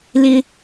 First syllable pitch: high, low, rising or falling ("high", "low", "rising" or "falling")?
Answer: high